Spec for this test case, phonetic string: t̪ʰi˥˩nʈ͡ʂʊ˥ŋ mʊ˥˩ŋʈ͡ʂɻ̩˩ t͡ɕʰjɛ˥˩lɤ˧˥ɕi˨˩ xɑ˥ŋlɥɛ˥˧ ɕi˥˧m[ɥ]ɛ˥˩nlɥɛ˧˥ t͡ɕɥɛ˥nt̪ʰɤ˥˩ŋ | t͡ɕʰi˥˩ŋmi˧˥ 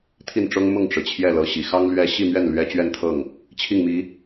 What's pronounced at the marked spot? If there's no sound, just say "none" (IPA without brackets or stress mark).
ɥ